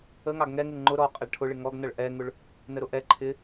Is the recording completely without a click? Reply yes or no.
no